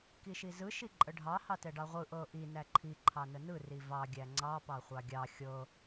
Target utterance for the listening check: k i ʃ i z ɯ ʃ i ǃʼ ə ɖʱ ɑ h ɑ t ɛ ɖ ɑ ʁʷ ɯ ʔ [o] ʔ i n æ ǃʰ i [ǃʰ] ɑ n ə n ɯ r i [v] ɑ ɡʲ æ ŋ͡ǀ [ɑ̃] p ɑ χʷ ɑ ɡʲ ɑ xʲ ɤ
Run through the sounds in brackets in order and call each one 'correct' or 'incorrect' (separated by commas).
incorrect, correct, correct, incorrect